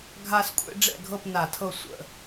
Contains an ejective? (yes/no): yes